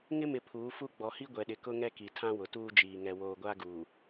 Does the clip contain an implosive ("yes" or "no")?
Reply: yes